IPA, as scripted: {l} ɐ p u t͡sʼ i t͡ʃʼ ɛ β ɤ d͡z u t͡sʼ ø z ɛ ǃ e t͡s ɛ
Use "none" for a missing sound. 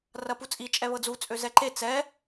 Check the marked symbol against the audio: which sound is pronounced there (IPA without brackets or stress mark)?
r